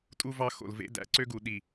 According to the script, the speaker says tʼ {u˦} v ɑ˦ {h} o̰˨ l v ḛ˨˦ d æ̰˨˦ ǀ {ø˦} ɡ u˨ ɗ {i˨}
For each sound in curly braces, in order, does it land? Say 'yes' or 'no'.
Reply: yes, no, yes, yes

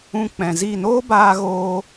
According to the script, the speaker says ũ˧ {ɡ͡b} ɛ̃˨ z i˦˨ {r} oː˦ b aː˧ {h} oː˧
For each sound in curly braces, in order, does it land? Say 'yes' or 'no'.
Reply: no, no, no

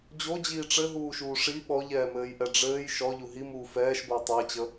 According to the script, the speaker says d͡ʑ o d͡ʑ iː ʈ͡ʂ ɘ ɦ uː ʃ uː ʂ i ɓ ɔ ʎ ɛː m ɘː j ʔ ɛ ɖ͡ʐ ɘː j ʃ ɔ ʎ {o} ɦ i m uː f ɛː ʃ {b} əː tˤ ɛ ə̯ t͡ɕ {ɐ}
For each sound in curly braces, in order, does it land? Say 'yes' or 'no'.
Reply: no, yes, no

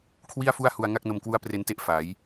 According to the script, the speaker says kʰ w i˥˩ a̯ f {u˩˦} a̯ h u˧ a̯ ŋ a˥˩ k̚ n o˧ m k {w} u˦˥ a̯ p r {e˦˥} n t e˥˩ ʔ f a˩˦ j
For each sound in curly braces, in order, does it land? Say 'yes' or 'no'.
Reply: no, yes, yes

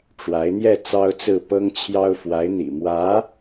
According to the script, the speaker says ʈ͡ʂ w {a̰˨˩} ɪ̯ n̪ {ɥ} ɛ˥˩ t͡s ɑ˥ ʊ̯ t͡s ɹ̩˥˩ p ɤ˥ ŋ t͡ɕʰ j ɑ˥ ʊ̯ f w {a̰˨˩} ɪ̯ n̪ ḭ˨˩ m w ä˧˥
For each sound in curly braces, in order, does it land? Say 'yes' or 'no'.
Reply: no, no, no

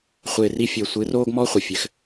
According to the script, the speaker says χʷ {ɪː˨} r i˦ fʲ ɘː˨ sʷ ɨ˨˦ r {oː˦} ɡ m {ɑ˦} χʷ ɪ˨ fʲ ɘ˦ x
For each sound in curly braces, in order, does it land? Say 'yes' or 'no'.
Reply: yes, yes, no

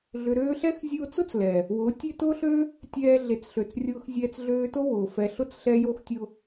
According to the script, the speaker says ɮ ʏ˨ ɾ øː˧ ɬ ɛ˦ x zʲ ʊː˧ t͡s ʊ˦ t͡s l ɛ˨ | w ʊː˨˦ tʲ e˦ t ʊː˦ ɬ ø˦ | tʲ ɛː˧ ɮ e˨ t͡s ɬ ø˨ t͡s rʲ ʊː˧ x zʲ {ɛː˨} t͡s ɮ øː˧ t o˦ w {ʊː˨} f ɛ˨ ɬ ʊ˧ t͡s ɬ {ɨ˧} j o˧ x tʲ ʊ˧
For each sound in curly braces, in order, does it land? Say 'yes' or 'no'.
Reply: no, yes, no

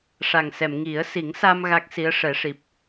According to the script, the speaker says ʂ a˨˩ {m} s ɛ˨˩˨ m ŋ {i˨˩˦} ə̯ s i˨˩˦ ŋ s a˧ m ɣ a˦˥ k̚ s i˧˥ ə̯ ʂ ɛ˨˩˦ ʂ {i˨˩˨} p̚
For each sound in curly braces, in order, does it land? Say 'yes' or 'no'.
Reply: no, yes, no

